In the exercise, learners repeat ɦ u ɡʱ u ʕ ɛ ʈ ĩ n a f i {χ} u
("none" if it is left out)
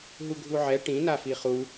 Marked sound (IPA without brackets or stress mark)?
χ